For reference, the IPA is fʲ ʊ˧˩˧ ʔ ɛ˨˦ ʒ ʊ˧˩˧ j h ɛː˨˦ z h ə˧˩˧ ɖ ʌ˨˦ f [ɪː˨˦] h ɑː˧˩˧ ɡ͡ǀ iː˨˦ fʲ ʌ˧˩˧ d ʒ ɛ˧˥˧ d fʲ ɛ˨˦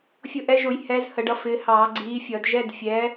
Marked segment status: correct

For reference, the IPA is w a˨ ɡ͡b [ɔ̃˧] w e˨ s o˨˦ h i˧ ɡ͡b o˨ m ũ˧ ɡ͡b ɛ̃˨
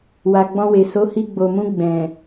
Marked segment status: correct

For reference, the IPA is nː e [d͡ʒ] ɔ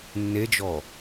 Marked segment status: correct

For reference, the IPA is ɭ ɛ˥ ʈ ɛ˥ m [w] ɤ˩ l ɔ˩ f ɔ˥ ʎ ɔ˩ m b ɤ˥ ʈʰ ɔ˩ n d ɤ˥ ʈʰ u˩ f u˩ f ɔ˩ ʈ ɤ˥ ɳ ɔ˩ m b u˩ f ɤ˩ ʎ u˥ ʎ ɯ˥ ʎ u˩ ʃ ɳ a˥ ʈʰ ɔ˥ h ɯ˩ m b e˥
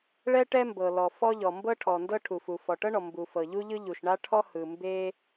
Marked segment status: incorrect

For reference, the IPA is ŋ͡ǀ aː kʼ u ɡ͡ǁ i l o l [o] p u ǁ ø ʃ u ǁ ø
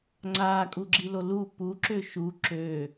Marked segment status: incorrect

